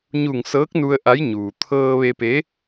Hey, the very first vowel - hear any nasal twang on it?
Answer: no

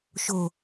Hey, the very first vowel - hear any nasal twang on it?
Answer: no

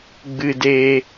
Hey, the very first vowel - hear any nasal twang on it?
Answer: no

